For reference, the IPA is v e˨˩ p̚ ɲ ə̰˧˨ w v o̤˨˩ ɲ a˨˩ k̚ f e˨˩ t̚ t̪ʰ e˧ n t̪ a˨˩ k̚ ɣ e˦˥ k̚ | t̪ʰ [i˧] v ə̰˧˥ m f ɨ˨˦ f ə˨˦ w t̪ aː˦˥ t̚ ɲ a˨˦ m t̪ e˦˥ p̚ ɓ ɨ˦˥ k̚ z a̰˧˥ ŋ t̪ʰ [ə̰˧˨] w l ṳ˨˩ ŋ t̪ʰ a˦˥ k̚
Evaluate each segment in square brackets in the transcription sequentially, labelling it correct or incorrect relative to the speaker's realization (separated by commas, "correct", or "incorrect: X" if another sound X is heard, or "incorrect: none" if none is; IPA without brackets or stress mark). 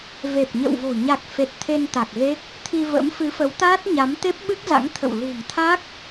correct, correct